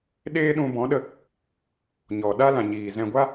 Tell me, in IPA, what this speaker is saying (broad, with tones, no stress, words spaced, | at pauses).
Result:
ɗeː˦ɗũ˧bɔ̃˨˦ɗə˧ | ɲɔ˨ ɗa˦lã˨ɲiː˨zɛ̃˧ ɡʷa˦